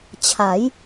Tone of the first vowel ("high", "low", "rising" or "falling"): rising